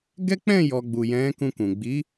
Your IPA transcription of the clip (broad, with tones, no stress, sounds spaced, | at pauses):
ɡ ɛ˦ k͡p ɛ̃˦˨ j ɔ˨ ɡ͡b u˨ j ɛ̃˨˦ k ũ˧ k ũ˨ ɡ͡b i˨˦